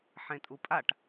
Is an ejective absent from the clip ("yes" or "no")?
no